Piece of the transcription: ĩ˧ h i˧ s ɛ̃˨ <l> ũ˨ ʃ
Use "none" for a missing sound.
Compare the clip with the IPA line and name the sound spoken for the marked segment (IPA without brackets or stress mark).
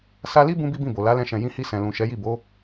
l